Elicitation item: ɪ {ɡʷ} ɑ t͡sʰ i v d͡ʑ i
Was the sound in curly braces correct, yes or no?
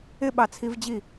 no